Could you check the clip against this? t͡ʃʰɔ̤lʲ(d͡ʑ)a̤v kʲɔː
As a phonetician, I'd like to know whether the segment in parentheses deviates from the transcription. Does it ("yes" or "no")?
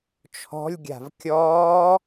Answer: yes